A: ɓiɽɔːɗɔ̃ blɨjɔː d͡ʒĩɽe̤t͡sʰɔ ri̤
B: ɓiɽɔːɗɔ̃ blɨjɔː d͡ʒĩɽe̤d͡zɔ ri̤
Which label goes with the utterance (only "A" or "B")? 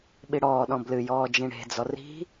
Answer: B